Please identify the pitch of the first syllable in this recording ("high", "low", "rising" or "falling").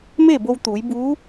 falling